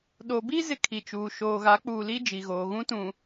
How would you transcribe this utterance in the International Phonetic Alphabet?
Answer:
ɗ o˨ b i˦ z ɪ˦ kʰ i˨ t͡ʃ uː˨ ʃ oː˨ ɣ a˨˦ k͡p uː˨ l i˦ d͡ʒ i˨ ɣ oː˨ ɣ ũ˦ t ũ˨

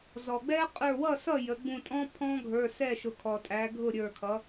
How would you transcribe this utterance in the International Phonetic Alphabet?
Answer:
z ɔ˩ ɡ͡b ɛ˦˥ qʼ ə˞˧˩ w ʌ˥˩ s ʌ˥˩ j ə˩˧ ɡ͡b ũ˧˩ tʼ ɔ̃˦˥ pʰ ɔ̃˦˥ ɡʱ ə˞˩˧˩ s ɛ˥˩ ʃ ʊ˩˧ kʰ ɔ˩ tʼ æ˩˧ ɡʱ ʊ˥˩ ɾʲ ə˞˧˩ kʰ ʌ˩˧

